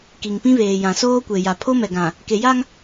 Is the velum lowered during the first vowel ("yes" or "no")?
no